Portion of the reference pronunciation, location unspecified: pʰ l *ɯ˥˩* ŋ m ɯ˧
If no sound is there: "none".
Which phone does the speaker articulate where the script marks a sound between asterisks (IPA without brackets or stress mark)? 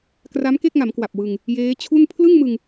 ɯ˥˩